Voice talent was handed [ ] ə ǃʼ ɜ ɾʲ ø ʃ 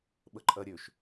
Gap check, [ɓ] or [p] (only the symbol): ɓ